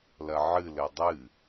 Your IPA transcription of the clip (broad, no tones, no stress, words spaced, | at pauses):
lɐʕɨ lɘdˤɨ